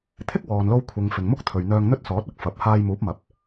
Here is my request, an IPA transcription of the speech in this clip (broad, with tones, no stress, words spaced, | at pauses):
t̪ʰɪ˥k̚wɔː˨nlo˧w kʷʰɪ˨ŋ fɪ˨ŋmʊ˥k̚t̪ʰɵ˨ɥn̪œː˧ŋ n̪ɵ˥t̚sɔː˨˥t̚ ɐ˨˥k̚ fɐ˨˥p̚ haː˧j muː˨˥p̚mɐ˨p̚